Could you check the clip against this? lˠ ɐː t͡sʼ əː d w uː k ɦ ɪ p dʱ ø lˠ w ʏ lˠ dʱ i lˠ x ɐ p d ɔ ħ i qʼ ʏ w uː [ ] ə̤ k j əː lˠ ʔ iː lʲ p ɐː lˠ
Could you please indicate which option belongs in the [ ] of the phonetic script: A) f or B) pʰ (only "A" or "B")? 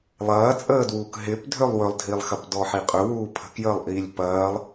B